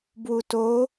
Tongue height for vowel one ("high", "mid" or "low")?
high